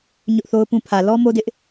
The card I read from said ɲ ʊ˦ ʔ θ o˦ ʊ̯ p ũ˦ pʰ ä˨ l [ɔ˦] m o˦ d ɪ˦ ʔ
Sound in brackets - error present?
no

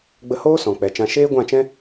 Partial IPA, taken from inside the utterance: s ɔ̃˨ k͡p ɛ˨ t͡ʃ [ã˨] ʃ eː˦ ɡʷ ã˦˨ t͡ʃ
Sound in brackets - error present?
yes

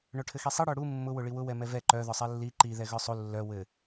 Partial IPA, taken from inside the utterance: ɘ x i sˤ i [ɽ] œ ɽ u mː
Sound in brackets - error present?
no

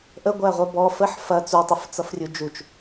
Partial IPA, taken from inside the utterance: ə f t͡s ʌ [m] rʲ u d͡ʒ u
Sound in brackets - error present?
yes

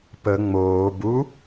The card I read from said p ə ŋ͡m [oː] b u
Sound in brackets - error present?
no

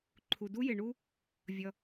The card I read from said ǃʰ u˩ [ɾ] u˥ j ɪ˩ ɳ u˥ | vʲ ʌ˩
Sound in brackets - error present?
yes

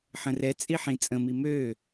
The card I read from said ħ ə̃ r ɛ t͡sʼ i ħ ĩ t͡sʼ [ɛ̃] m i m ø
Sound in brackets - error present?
yes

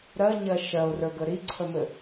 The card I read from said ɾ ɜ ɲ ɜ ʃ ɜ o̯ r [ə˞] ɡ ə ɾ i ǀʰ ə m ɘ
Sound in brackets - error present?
no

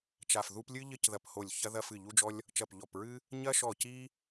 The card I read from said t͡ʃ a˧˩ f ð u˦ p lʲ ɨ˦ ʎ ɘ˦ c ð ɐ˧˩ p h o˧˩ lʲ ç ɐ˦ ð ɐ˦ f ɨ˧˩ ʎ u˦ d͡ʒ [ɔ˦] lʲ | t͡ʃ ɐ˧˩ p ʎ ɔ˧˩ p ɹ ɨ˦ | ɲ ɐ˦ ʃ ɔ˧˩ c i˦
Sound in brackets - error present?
no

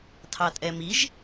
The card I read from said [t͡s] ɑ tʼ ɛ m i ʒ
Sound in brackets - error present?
yes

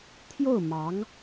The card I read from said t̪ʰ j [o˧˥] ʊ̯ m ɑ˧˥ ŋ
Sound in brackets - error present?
yes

